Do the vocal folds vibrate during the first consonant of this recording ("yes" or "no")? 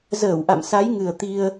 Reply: yes